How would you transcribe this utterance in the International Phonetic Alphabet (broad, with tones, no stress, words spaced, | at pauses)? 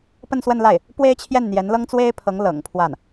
pə˥˧nswə˥˧nla˥˩ɪ̯ | pwe˥ɪ̯t͡ɕʰjɛ˥˩nn̪jɛ˧˥nlɤ˥ŋ t͡swe˥ɪ̯pʰɤ˧˥ŋlɤ̰˨˩ŋ pʰwa˥˩n